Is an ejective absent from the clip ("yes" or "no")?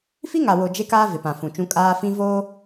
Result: no